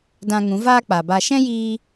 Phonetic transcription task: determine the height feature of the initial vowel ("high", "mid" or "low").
low